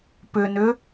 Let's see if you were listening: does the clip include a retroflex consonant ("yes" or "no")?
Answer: no